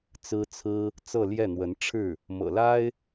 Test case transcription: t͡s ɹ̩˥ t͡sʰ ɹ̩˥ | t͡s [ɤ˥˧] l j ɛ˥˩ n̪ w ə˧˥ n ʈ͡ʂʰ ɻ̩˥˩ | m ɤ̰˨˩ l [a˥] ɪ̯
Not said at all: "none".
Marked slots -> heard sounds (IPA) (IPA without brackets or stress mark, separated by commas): ɤ˥˧, a˥